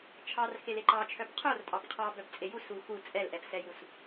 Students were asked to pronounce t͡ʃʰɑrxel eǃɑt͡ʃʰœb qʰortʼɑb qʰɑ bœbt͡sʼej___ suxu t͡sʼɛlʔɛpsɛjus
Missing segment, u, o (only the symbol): u